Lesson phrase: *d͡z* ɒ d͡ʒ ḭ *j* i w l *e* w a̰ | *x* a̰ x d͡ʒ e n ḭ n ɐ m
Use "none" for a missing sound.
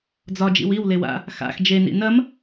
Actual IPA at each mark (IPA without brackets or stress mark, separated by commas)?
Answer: d͡z, w, e, x